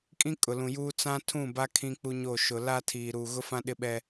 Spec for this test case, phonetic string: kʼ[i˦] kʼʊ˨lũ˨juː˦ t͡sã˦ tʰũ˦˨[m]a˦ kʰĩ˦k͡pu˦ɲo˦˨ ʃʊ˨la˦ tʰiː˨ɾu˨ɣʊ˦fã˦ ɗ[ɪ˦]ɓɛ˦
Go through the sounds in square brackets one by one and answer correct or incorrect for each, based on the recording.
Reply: incorrect: ĩ˦, incorrect: b, correct

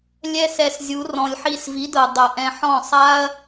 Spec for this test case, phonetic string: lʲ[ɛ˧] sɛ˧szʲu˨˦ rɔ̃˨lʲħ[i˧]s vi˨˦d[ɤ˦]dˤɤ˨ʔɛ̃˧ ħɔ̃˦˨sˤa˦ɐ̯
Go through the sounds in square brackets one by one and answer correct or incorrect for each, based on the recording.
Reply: correct, correct, incorrect: ɤ˨

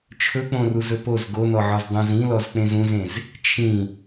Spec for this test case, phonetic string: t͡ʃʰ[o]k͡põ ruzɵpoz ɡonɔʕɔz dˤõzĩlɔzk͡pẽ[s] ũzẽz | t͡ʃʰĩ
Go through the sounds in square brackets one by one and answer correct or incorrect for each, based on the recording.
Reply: incorrect: ɵ, incorrect: z

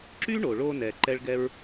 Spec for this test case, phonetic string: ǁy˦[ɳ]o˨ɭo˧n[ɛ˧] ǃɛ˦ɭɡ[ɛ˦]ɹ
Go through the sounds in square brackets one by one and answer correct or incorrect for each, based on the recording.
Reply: correct, incorrect: ɛ˨, correct

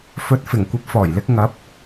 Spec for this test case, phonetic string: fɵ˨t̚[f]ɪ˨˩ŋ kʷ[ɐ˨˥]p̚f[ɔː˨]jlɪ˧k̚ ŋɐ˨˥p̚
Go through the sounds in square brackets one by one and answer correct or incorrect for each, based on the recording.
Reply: correct, correct, incorrect: ɔː˨˩

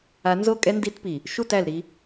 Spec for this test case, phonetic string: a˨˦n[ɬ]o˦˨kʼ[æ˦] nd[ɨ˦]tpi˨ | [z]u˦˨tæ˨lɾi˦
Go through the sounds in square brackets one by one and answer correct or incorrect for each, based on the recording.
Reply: incorrect: z, incorrect: ɛ˦, incorrect: i˦, incorrect: ʃ

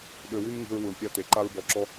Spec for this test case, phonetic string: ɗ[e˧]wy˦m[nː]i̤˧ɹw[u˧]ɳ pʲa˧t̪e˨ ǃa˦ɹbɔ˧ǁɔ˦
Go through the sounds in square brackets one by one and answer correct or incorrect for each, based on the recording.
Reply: incorrect: ø˧, incorrect: ŋ, incorrect: u˨

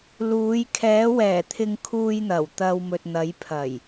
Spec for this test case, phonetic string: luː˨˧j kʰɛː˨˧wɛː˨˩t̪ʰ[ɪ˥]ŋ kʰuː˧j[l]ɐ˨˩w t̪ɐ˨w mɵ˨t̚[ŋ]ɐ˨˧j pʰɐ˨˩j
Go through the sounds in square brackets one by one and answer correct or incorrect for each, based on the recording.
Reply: incorrect: ɪ˨, incorrect: n̪, incorrect: n̪

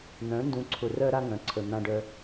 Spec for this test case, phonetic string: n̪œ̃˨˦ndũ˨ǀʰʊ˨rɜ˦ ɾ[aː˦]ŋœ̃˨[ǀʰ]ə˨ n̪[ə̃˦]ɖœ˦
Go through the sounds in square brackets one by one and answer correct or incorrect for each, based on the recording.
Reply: incorrect: a˦, correct, incorrect: ã˦

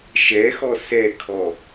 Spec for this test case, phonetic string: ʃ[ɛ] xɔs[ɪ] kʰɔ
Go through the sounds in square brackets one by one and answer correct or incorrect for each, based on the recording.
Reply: correct, incorrect: ɛ

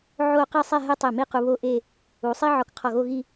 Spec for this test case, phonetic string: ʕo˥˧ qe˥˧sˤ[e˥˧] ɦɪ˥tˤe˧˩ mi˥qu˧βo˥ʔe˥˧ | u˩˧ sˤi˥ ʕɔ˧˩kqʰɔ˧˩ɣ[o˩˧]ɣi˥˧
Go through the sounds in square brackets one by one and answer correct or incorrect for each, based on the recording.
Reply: incorrect: ɛ˥˧, incorrect: o˥˧

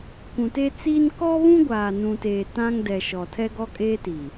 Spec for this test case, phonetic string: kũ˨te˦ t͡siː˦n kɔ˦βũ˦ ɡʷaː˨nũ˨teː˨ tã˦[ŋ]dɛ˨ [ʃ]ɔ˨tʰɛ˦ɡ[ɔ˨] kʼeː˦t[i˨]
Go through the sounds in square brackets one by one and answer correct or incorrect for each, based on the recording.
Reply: correct, correct, incorrect: ɔ˦, correct

